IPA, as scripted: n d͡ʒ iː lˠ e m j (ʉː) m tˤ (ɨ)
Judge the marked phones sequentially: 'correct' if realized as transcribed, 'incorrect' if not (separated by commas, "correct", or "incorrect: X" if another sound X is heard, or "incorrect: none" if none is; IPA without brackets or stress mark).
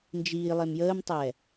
incorrect: əː, incorrect: ɛ